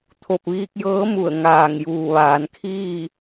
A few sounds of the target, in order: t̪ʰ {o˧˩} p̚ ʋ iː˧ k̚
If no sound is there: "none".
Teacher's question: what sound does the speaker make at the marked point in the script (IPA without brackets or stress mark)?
o˧˩